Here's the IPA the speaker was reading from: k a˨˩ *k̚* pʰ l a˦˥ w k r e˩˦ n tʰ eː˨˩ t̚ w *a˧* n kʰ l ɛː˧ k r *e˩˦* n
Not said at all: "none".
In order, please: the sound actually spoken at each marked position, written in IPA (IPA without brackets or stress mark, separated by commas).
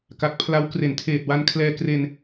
k̚, a˧, e˧